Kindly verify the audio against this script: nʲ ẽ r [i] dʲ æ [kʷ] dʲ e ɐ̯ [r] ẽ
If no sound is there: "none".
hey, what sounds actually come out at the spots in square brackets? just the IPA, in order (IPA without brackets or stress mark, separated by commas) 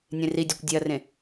i, kʷ, r